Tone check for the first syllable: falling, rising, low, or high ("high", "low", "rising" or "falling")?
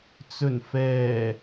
low